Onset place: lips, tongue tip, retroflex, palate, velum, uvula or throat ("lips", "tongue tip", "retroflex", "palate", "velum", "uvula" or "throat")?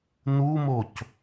tongue tip